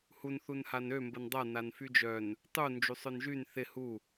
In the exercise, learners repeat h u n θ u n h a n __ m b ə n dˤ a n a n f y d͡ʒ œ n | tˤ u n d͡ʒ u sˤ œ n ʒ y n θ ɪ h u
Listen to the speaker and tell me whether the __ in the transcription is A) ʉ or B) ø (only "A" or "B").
B